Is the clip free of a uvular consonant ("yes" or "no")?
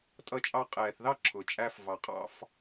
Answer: no